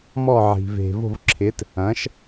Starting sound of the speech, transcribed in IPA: m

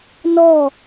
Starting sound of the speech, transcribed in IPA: n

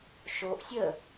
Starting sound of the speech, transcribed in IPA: ʃ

